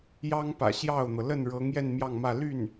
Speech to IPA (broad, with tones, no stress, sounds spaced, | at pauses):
j ɑ˥ ŋ p ä̰˨˩ ɕ j ɑ˥˩ ʊ̯ n̪ ɤ˩ l ə˥˩ n ɻ ɤ˧˥ ŋ j ɛ˥˧ n m j ɑ˥˧ ŋ m ä˥˧ l y˥˩ n